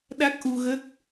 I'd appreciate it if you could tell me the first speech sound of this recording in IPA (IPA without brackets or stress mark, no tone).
ɗ